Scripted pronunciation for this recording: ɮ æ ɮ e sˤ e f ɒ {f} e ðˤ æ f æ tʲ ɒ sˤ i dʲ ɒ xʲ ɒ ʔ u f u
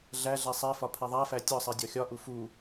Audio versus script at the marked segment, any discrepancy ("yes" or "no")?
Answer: yes